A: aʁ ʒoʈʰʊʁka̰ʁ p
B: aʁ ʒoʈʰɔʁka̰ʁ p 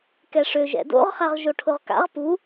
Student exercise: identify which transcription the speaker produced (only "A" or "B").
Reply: A